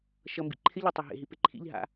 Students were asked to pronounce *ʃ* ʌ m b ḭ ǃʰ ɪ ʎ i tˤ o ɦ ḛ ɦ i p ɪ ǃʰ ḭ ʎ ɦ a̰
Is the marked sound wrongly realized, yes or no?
no